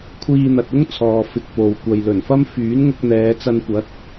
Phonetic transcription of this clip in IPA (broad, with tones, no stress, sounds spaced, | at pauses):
kʷʰ iː˧ n̪ ɐ˨ t̚ ʊ˥ ŋ t͡sʰ ɔː˨ f ɪ˨ k̚ p o˨ w kʷ ɐ˨ j l ɵ˨˩ n f ɐ˥ m f yː˨˥ n ŋ ʊ˧ k̚ n̪ ɛː˨˧ t͡s ɐ˧ n kʷ ɐ˨˥ t̚